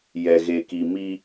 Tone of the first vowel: low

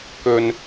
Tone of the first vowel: low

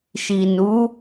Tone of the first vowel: low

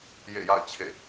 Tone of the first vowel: falling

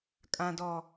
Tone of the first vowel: low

